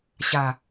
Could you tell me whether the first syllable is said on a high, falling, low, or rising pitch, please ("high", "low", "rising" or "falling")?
low